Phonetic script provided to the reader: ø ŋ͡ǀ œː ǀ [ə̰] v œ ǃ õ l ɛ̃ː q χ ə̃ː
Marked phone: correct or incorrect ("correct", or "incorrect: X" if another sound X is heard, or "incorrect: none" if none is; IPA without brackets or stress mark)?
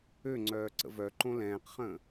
correct